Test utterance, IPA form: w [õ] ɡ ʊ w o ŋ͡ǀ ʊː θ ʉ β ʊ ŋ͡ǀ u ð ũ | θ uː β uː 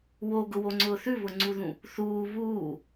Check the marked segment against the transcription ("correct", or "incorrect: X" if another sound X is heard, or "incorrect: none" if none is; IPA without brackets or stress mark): incorrect: o